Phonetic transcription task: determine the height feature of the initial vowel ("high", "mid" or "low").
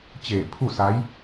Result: mid